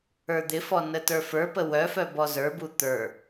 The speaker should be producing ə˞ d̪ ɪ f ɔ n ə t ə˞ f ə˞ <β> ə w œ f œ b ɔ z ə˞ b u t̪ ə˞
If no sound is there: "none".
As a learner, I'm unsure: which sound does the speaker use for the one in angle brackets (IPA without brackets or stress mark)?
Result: p